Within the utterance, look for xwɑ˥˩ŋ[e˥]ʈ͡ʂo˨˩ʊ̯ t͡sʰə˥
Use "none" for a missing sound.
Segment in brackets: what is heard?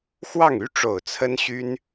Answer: y˥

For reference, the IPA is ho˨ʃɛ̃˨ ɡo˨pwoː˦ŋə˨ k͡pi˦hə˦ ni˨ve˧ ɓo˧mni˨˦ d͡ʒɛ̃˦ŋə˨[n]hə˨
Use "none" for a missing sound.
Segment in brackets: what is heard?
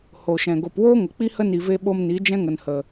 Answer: n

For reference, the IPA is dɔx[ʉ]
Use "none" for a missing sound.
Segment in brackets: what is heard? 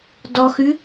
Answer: ʉ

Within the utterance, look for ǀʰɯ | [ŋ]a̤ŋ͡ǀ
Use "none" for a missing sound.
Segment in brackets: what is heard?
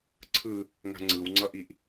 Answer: ŋ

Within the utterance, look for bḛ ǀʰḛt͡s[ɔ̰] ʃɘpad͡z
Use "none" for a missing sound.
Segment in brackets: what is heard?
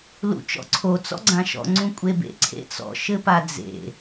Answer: ɔ̰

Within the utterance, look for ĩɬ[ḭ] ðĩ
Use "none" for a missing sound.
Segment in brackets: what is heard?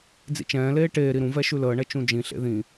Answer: ḛ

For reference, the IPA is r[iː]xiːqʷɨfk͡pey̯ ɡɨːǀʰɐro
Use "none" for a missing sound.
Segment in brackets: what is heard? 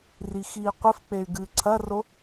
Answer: i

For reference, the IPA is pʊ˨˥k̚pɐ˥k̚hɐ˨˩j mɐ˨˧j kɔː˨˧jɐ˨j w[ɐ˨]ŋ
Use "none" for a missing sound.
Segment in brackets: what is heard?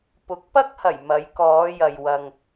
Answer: ɐ˨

